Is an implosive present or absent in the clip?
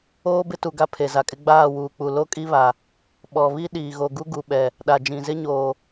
present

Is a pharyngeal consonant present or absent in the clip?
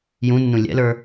absent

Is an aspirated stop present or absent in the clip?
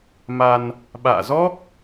absent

